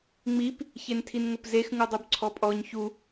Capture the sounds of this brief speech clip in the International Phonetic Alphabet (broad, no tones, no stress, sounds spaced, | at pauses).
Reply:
ŋ͡m i p | ç e n tʰ i n ŋ ʊ p z e x ŋ u dˤ u b ǀʰ ɔ pʼ ɔ ɲ ç u